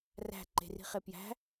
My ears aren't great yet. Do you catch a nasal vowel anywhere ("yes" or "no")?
no